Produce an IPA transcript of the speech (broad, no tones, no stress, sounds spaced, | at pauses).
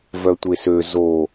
v œ tʷ e s ø z o